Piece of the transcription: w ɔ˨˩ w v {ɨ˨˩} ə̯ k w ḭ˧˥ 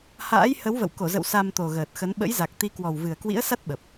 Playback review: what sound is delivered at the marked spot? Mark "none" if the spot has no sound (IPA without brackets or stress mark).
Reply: ɨ˨˩